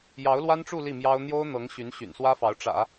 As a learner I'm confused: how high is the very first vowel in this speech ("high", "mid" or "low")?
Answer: low